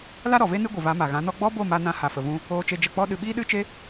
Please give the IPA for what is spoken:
la˦ɾɔ˨ve˦ nɨ˦ɡʷɨ˨va˨˦ ma˨ɣã˨˦nɔ˦ ɡ͡bɔ˦bo˦˨ ma˧nã˧ ha˨fə˨vũ˧ | oː˧t͡ʃe˧ d͡ʒə˨k͡pɔ˧ɗɨ˨ ɓiː˦ɗɨ˦t͡ʃe˦

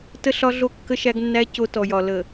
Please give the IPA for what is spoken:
tə˦ɬɒ˦ɮo˦ kːə˦ʃæ˦ɡnːæ˦ co˦tɔ˨jɒ˨ lə˨

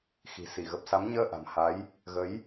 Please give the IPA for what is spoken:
xi̤˨˩si˧˩ɣə˨˩p̚sa˨˦m ɲəː˧ʔa̤˨˩m ha˨˦j | ɣə˨˦j

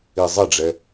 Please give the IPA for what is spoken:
izˤɪɖ͡ʐɛ

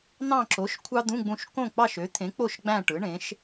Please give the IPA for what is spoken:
n̪ɑ̃˦˨ǁo˩˥ʃ kʷʰɑ˥d̪ũ˧˥˧ɡ͡bũ˦˨ʃ kõ˦˨k͡pɑ˦˨ʃ ø˩˥t̪ʰẽ˩˥k͡po˦˨ʃ ɡ͡bæ̃˦˨ ʈɯ˩˥ɳẽ˩˥ʃ

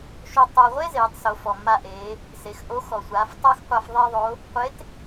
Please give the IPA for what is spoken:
ʃo˧ tˤa˧ ʁʷe˥zeː˩˧tˤso˩˧ fɔ˩mːa˧ʔeː˩˧ | se˩˧x ʔo˧˥ xɔ˩sʷaː˩˧ftˤa˥xqʷa˧f ðˤe˥ðˤo˧˥ | qʷe˧˥t

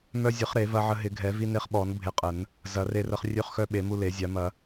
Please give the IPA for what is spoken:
mœ˧zʲə˨˩˦χ ɾe˨˩˦vɐ˧ʕə˧ ɦɪ˨˩˦ɡʱɛ˨˩˦vi˧ne˧χ ɓɔ˨˩˦n bʱe˧qʼə˨˩˦n | zɐ˨˩˦re˧rə˧χ rʲø˧χxœ˧ ɓe˨˩˦mu˧le˨˩˦zʲa˨˩˦ mɐ˨˩˦

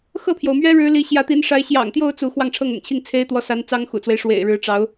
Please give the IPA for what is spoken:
xɤ˥˩pʰjo˩ʊ̯mɥɛ˥ ɻɻ̩˧˥li˧˥ ɕjä˧˥t̪i˧˥nʂa˧˥ɪ̯ ɕjɑ̰˨˩ŋt̪jo˥˧ʊ̯ t͡su˥˧ xwɑ˥˧ŋʈ͡ʂʰɤ˥˩ŋʊ̰˨˩ŋt͡ɕʰi˥˩ŋ t͡sʰe˥ɪ̯t̪wɔ˧˥sa˧˥n t͡sɑ˥ŋxṵ˨˩t͡swe˦ɪ̯ ʂwḛ˨˩ɪ̯ɻɻ̩˧˥ʈ͡ʂɑ˧˥ʊ̯

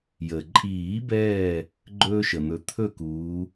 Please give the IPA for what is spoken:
jə˩ǃʼiː˨˩˦bɛː˧˩ | ɡ͡ǃɵː˦ʃə˩n̪ɵ˨˦ t̪ʰɵ˥˨kuː˨˦

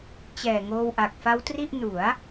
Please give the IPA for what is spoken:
t͡ɕɛː˨˩ŋoː˧wʔa˨˩k̚ fa˦˥wtri˥˩ʔ nu˩˦a̯

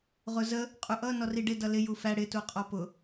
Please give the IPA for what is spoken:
ʁʊzə | qʼuʔʌ nɔriɖɪ dʌlɪ jufæ ɽɪ tuqʼɔpʊ

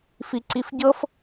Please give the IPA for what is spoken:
fiǀifɟɤf

